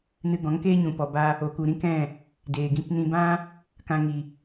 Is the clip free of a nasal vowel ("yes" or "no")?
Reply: no